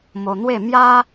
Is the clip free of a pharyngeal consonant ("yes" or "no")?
yes